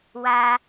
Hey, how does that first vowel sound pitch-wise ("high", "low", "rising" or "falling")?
high